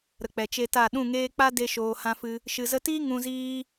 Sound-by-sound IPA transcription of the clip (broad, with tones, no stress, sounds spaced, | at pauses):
ɾ ə˨ k͡p ɛ˨ t͡ʃ e˧ t a˦˨ ɗ ũ˦˨ ŋ eː˦ k͡p a˦ d e˧ ʃ oː˨ h ã˧ f ɨ˧ | ʃ ɨ˨ z ə˧ t iː˦ ŋ ũ˧ z iː˦